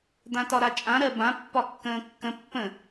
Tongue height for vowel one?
low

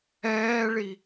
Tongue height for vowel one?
mid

